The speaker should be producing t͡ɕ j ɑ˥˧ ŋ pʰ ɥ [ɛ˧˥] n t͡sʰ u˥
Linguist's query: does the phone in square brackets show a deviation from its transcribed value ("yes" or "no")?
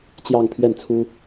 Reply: yes